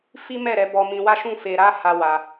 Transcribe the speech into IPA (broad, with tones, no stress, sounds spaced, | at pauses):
f i˦ m ɛ˦˨ ɾ ɛ˧ b ɔ˧ m ĩ˧ w a˦ ʃ ũ˦ f e˧ ɾ a˦ h a˧ w a˧